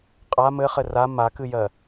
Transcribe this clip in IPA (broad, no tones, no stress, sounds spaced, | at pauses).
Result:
qʼ a m ɘ χ ɘ r a m a k ɨ j ɜ